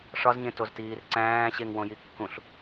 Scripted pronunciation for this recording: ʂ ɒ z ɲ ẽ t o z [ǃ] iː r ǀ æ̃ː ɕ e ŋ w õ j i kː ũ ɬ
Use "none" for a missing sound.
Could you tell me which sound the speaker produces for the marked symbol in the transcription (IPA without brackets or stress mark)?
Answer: t